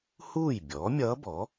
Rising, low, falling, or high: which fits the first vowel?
falling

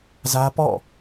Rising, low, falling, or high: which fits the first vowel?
high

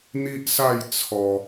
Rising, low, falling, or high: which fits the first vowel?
high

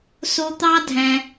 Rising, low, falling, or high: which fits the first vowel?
high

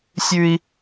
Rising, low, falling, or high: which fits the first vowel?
high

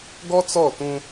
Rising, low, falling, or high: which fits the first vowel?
high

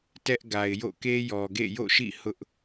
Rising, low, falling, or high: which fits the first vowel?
high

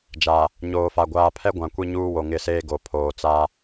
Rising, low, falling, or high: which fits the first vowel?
low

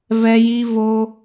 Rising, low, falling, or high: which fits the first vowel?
high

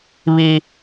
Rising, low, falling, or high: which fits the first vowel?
high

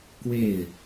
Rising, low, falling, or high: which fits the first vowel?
falling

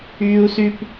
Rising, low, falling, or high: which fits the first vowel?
high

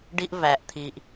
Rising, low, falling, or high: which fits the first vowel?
high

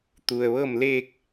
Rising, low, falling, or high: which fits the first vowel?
low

